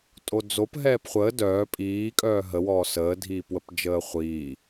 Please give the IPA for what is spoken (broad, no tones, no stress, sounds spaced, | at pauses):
tʼ o d͡z o p ɦ ɛː p χʷ əː d œː pʼ iː kʼ œː ɦ ə w ɔː s əː dʱ iː p w ə p d͡ʒ əː χʷ iː